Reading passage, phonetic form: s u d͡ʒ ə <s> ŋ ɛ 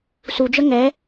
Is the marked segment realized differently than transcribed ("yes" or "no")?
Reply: yes